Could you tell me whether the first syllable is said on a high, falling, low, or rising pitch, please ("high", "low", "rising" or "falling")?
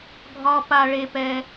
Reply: low